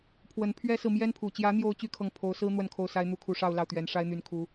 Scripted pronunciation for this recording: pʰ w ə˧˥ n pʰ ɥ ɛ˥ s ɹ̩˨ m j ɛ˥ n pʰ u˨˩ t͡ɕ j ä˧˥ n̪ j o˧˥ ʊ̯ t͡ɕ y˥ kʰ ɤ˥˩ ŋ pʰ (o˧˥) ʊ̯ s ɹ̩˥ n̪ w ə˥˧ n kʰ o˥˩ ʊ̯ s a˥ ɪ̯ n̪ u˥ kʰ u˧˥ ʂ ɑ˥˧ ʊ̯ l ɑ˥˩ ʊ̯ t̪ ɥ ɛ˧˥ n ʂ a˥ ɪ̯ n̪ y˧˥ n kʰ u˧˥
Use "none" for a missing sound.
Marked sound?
o˧˥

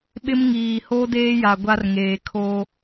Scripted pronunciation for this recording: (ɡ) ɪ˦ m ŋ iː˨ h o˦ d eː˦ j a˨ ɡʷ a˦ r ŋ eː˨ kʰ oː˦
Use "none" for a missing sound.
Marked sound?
ɓ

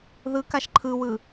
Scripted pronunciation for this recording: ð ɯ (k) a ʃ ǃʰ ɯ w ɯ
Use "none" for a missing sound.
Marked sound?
k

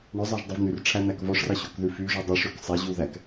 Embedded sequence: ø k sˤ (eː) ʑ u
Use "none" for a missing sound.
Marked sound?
e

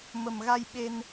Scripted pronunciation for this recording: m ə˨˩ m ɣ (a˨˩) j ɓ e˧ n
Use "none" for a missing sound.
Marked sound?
a˧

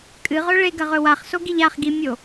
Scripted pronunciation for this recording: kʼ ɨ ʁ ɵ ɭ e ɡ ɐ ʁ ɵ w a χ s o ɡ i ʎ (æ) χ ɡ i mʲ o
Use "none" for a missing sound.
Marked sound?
a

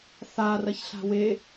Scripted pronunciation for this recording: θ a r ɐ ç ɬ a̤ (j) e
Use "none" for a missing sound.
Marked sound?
w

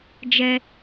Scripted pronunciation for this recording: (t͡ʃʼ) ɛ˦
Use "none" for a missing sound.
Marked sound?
d͡ʒ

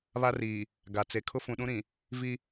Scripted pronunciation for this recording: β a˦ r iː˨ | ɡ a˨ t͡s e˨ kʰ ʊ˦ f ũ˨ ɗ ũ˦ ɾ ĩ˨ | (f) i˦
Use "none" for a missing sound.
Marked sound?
v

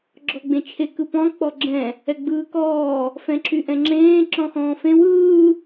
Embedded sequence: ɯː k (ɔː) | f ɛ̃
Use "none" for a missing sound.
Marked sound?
ɔː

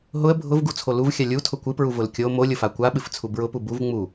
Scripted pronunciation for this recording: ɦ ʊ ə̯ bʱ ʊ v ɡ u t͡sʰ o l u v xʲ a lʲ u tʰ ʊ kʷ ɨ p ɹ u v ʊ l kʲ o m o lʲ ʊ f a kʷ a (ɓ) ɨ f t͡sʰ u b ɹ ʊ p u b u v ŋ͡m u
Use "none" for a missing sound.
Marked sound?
ɓ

